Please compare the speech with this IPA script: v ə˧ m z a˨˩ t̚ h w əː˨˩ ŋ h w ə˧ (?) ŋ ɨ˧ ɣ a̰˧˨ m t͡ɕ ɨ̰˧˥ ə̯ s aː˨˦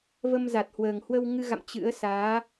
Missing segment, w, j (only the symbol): w